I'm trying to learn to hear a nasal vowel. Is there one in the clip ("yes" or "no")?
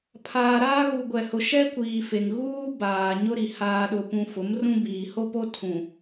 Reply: yes